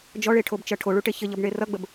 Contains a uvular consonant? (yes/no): no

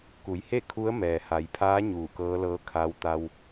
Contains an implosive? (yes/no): no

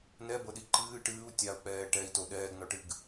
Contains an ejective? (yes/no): no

